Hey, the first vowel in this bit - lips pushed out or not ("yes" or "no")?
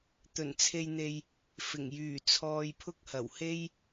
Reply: yes